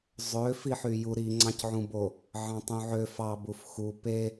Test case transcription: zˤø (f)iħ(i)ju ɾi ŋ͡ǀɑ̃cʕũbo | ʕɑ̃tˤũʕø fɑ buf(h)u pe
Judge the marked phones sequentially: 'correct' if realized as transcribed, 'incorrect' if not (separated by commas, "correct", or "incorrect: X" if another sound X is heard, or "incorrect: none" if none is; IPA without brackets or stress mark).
correct, incorrect: y, incorrect: x